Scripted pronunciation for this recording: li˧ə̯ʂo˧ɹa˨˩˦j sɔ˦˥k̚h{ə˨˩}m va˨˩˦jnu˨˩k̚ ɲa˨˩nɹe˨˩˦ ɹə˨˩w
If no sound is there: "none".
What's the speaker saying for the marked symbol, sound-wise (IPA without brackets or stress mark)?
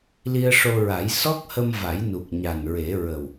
ə˧